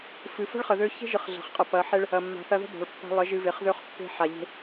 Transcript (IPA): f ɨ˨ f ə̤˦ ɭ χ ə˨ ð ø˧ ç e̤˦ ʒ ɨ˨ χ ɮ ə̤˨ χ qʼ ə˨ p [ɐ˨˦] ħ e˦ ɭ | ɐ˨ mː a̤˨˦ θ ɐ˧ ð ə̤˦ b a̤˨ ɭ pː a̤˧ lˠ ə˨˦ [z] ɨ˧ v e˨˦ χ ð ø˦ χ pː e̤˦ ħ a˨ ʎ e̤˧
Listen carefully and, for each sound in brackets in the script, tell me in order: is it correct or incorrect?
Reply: correct, incorrect

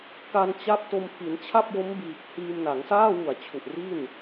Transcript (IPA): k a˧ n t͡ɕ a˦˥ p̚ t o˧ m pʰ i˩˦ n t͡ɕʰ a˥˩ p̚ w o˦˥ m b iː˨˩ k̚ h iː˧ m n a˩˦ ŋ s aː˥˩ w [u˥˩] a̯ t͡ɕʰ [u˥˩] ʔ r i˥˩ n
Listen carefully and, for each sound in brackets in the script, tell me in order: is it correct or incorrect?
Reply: incorrect, incorrect

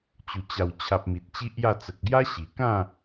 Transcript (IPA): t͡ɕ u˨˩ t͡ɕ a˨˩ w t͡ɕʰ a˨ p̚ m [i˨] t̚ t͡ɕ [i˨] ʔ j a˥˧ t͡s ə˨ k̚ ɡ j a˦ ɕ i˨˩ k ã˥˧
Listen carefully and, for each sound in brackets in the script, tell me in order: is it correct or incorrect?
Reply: correct, incorrect

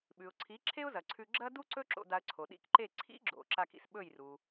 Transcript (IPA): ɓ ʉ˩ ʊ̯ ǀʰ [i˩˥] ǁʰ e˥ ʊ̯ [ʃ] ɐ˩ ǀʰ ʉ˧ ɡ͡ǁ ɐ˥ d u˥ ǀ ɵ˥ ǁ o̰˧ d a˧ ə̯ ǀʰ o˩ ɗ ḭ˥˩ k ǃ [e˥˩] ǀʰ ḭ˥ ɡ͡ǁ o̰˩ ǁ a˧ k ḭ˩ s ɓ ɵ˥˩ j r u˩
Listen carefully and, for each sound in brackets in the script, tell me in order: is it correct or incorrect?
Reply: correct, incorrect, correct

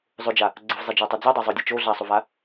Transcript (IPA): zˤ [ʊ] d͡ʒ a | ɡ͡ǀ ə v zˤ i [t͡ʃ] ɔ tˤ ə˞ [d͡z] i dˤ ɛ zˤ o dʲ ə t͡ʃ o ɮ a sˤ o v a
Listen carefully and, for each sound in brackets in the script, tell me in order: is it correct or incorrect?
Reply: correct, incorrect, correct

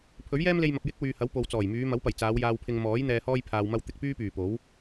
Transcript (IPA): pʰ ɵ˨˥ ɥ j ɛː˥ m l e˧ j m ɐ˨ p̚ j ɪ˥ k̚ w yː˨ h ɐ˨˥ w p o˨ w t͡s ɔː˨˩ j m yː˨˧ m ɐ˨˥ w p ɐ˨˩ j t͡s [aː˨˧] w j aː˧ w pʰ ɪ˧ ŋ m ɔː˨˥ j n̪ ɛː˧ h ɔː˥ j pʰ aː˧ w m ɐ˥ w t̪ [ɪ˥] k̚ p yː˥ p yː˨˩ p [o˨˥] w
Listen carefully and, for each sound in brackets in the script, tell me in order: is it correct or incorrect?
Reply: correct, incorrect, correct

